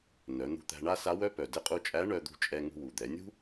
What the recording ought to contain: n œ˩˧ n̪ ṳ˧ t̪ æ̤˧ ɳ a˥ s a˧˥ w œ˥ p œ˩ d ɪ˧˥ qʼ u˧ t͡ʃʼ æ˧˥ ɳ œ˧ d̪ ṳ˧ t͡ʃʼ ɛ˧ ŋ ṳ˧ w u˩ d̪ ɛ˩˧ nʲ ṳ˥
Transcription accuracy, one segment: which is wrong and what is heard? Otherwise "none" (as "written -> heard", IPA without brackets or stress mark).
none